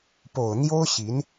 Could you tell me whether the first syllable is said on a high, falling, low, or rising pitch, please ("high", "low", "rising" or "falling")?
low